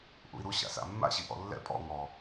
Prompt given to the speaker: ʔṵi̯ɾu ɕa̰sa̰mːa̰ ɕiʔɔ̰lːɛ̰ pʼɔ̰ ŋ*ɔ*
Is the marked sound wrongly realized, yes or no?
no